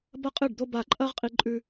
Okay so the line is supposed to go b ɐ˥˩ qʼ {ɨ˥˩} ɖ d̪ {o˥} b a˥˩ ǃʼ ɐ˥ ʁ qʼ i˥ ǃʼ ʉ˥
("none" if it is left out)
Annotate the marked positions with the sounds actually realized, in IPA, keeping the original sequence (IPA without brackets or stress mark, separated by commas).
ɨ˥˩, o˥